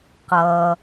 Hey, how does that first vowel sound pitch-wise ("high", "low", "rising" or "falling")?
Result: low